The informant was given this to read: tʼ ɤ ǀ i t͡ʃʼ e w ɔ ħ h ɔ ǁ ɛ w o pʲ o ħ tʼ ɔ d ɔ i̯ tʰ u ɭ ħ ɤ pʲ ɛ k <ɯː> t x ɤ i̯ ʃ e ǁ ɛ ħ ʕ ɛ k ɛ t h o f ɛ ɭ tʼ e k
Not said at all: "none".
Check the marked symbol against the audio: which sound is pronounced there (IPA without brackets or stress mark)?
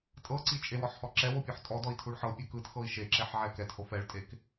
ɯ